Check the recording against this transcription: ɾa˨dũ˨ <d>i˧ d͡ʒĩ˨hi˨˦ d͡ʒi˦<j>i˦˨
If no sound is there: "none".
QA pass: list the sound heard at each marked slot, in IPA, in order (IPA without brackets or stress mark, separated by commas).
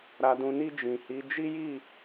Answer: n, j